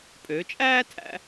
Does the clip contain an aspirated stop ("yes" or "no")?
yes